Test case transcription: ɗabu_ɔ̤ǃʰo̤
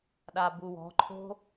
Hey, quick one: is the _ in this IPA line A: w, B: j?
A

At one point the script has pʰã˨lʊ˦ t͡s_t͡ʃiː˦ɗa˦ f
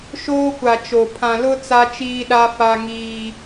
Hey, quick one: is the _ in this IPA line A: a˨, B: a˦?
B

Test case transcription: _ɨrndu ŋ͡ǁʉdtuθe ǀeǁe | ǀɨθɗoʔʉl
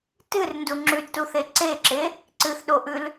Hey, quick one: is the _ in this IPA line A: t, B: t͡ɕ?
A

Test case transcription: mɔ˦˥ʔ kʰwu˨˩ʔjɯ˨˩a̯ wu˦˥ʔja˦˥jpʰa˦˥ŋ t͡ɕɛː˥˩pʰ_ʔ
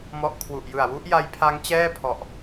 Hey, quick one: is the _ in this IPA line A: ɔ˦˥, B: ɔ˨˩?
B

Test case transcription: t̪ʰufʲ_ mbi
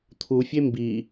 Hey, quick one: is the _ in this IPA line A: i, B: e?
B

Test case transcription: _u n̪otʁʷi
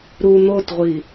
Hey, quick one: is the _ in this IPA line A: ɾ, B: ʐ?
A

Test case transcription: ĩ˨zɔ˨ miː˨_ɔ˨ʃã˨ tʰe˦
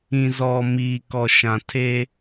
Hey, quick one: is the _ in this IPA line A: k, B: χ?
A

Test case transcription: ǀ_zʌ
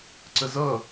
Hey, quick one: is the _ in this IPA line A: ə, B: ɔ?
A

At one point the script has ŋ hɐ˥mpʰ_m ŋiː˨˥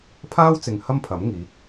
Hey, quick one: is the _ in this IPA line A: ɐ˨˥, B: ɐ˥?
A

